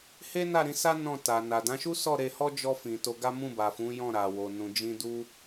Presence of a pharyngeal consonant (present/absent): absent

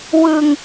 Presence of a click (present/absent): absent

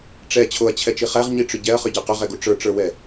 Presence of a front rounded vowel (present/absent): present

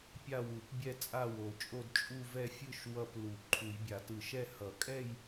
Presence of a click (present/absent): present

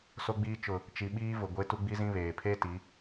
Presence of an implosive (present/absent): present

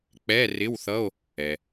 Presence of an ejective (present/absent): absent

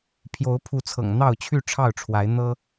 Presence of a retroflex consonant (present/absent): present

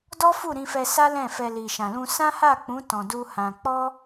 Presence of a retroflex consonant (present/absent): absent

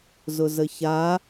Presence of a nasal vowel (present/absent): absent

